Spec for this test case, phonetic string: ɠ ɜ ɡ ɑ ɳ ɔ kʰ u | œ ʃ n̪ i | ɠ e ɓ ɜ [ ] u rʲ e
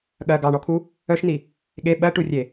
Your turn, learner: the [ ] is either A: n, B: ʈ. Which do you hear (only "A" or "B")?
B